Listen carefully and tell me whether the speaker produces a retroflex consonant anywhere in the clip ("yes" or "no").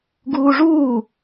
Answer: yes